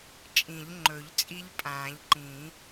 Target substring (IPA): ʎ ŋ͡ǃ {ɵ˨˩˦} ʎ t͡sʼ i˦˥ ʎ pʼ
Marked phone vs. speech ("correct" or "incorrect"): correct